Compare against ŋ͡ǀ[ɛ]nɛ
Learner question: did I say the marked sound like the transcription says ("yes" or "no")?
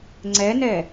yes